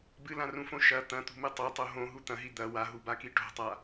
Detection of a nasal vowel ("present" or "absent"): present